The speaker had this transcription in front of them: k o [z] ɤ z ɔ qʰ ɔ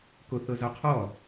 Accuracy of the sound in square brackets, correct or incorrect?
incorrect